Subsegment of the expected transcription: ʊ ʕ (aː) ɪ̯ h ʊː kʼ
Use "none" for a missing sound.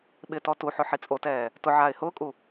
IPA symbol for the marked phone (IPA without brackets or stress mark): aː